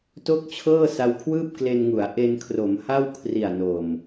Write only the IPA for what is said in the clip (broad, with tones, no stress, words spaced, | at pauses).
to˥˩k̚t͡ɕʰɤː˥˩ sa˧wkʰwɯː˥˩p̚kle˧nŋu˩˦a̯ ʔe˧nkʰro˩˦mha˥˩w kʰri˨˩a̯no˨˩m